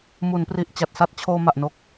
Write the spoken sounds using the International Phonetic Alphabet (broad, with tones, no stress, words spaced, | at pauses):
mu˩˦npri˨˩ʔ t͡ɕa˨˩t̚sa˥˩t̚t͡ɕʰoː˧ ma˨˩ʔno˦˥k̚